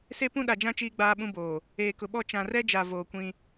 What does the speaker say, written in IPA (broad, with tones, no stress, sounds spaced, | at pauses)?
s e˦ p ũ˦ ɗ a˨ d͡ʒ ã˦ t͡ʃ iː˦ ɡ͡b aː˦ ɓ ũ˦ b oː˨ | eː˨ k ʊ˨ ɓ ɔ˦˨ t͡ʃ ã˨ r ɛ˦ d͡ʒ a˨ v oː˨ kʷ ĩ˦